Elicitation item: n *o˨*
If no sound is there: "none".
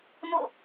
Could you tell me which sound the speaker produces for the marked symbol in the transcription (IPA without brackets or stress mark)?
o̰˦˨